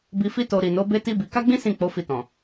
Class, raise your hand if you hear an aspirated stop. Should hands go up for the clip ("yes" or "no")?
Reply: no